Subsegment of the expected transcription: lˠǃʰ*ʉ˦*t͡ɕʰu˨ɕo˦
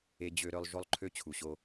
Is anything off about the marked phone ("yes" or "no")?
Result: yes